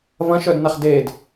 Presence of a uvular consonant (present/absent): present